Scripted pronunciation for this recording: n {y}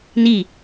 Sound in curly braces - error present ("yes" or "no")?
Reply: yes